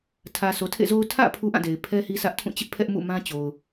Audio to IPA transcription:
tʰ ä˨ sʰ o˨ tʰ ḛ˦˨ z o˦ ʊ̯ tʰ ä̰˦˨ pʰ u˦ ʔ ã˦˨ d e˨ ɪ̯ pʰ ɛ˦ h i˦ s ä˦ ʔ tʰ ũ˦˨ t͡ɕ ɪ˦ ʔ pʰ ɛ˦ ʔ m ṵ˦˨ m ã˦ t͡ɕ o˨ ʊ̯

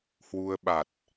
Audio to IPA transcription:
h w u˧ ə̯ ɓ a˨˩ t̚

